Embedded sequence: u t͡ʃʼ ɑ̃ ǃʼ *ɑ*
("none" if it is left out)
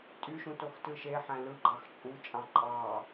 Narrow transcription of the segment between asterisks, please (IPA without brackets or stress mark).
ɑ